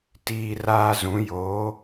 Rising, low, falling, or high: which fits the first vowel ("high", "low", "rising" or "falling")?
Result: high